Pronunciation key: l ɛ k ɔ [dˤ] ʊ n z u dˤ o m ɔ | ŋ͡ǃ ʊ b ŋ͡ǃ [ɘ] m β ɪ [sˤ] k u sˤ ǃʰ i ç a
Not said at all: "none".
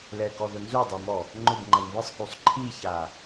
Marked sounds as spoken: ð, ɛ, sˤ

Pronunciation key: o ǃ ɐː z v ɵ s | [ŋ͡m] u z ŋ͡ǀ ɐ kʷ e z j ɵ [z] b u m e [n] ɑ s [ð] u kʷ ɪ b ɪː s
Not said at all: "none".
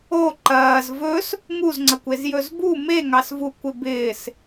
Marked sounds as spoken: ŋ, z, ŋ, v

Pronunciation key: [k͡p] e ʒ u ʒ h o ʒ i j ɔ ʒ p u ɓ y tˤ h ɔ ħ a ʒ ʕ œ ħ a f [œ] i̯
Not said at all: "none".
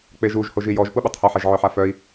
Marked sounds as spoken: k͡p, œ

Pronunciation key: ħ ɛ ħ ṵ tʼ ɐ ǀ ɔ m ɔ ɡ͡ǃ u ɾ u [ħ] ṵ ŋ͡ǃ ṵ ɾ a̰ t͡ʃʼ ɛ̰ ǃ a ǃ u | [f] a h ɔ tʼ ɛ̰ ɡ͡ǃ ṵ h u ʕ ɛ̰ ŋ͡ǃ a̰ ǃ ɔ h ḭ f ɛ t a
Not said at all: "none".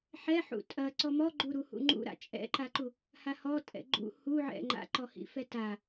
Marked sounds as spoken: h, h

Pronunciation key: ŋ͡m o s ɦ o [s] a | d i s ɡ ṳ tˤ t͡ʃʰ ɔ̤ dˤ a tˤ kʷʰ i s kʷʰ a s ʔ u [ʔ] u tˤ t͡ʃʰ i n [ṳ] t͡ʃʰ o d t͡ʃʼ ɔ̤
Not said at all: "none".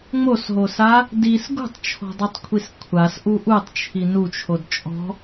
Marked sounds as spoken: s, ʔ, u

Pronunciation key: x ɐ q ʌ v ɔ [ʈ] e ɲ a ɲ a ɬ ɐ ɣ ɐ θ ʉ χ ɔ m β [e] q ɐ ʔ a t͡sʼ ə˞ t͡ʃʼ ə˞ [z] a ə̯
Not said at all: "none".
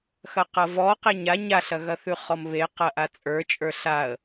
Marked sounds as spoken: q, e, ɬ

